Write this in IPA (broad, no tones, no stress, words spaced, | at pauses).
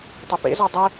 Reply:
tˤɘpḛzɔ dˤə